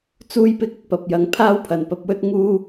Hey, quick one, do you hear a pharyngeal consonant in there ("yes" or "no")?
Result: no